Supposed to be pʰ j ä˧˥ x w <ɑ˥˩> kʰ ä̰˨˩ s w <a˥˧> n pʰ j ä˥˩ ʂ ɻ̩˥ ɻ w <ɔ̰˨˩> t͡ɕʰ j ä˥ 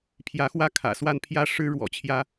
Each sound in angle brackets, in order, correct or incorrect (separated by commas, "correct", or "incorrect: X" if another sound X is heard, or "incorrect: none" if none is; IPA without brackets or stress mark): incorrect: ä˥˩, correct, correct